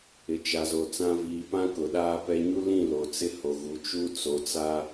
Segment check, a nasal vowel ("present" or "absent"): present